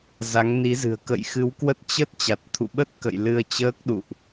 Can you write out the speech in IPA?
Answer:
za˨˦ŋni˨˦zɨ̤˨˩ə̯ kə̰˧˨jxɨ˨˦wkwə˦˥t̚ t͡ɕə˦˥t̚ t͡ɕa˨˩t̚t̪ʰṵ˧˨ɓə˦˥t̚kə̰˧˨j lɨ˧ə̯t͡ɕəː˦˥k̚ɗṵ˧˨ʔ

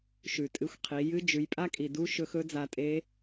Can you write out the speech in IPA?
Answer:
ʃʉ˩tʼɨ˧˥xʷqʰi˩˧ jɨ˧˥d͡ʒʉ˩˧j pʼa˥kʼi˩du˧˥ ʃɵ˧xɵ˧˥ d͡za˧tʼe˧˥

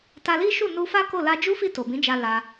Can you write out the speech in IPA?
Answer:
ta˧li˦ʃu˦˨ nu˧fa˦ko˦˨ la˧d͡ʒu˦fi˦˨ to˨bĩ˨˦d͡ʒa˧ la˧

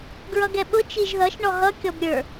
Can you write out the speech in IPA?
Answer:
ɡɹʌɡɛɓʊ t͡ʃiʒðʌʃ ɳɔɦʌ kʲɔbɾʲə˞

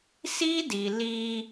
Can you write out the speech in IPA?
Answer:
si˦di˨ li˦

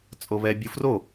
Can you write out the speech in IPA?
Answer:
t͡sʼoβɛ bʲufro

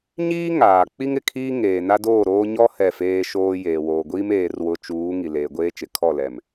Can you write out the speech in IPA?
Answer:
ɲiː˦ ŋaː˨ k͡pi˦ŋɪ˨kʰiː˦ ŋeː˨na˦doː˦˨ɾoː˦ ɲɔ˦ hɛ˦˨feː˦ʃoː˦ jeː˨woː˨ɡʷiː˦m eː˦rwʊ˦ t͡ʃuː˨˦ ŋi˨ leː˨ɡʷeː˦t͡ʃɪ˨ kʰɔ˦˨ lɛ˦˨m

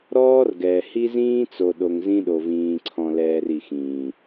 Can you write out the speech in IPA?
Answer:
ɾɔː˦rɡɛː˨ hi˦zĩː˦t͡so˨ ɗo˨ŋzĩ˦ɗo˨vĩː˨ ǀʰɔ̃˨lɛː˨r i˨xĩː˨

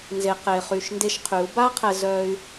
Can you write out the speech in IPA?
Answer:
nze˨qe˨χy˨ʃ nde˧ʃqʰy˨˦u̯ ba˦ qʰɛ˧zœ˧y̯

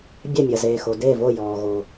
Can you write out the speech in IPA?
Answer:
bʲɛ˧˩mʲɐ˩zeː˩xo˩ de˧˩vo˧˩jɔː˩ ɣo˩

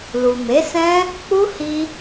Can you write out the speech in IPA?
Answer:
lu˨ me˨˦sɛ̃˦ | k͡pu˦hi˧

